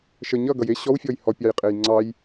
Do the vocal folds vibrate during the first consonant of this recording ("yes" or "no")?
no